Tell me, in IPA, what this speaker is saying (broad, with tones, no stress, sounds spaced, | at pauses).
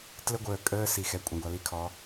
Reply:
t l ə˦ ɡʷ əː˨ kʼ əː˦ s i˨ x ɛ˨ kʷʼ ə̃˨ ɡʷ ɑ˨ l i˦ kʰ ɔ˨˦